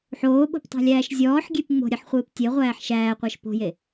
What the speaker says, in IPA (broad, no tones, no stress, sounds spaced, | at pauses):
ħ oː ɓ o̤ p tˤ æ̤ lʲ æː ʃ zʲ ɔː ħ ɡʲ e p ŋ͡m o̤ ɾʲ e ħ χʷ ɨː p tʲ e ʁʷ æː ħ ʃ æː qʷ æ ʃ p o̤ j e